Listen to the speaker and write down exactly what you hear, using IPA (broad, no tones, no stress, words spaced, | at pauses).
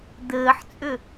d̪ɘːħt͡sʼʏ